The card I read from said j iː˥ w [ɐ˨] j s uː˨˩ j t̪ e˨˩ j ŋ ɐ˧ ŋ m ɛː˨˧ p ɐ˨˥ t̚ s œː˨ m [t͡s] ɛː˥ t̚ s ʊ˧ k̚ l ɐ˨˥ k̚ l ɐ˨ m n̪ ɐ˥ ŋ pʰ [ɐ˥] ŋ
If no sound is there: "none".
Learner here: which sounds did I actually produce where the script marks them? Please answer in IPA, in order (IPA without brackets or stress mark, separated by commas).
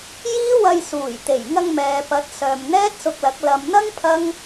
ɐ˧, n̪, ɐ˥